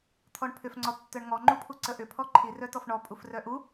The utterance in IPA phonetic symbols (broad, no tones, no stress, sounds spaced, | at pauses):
t̪ʰ ɔ ɳ pʰ ʏ f ŋ͡ǀ ɔ tː œ ɳ ŋ ɔ ŋ͡ǃ u pʰ u ǀ ə ʔ ʏ pʰ ɔ ǃʰ i r œ t ɔ f ɳ ɔ pʼ u f r œ ʔ u